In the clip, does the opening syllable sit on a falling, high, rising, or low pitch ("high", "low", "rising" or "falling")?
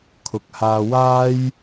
low